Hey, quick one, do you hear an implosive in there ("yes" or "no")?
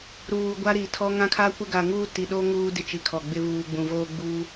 yes